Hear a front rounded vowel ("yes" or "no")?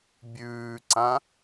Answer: no